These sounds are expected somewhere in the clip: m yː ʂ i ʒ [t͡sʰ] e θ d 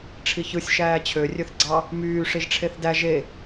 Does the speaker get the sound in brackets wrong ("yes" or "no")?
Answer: yes